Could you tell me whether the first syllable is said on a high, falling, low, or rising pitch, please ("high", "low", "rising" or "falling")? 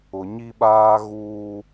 low